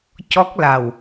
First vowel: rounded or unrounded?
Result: rounded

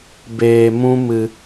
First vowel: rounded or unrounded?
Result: unrounded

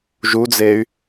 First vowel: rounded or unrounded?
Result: rounded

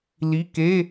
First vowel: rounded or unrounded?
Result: unrounded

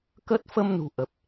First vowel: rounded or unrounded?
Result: unrounded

